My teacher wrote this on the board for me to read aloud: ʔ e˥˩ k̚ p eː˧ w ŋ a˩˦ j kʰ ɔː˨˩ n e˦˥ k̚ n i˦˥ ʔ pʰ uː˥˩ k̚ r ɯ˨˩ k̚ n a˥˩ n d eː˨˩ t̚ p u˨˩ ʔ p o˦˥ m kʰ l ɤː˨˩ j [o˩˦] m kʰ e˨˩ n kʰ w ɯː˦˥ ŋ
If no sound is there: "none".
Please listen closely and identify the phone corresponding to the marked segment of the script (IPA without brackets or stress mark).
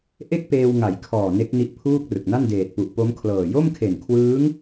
o˥˩